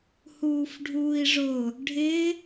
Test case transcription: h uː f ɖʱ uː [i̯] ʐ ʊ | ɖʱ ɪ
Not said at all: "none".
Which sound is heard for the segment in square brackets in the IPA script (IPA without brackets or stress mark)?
i̯